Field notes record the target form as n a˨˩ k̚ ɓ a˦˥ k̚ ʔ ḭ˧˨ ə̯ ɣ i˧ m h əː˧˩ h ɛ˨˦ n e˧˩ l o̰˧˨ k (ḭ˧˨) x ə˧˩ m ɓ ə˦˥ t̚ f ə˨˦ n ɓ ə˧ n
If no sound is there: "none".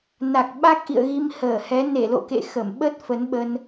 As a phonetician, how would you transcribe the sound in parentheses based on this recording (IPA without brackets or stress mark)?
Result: ḛ˧˨